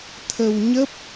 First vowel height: mid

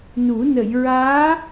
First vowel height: high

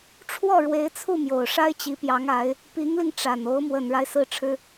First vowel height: mid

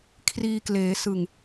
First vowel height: high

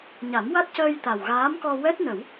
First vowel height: low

